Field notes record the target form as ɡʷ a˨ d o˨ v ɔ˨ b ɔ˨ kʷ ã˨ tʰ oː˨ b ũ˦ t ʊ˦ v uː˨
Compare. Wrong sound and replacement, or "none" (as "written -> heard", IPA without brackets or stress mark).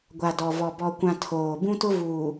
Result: o˨ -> ɔ˨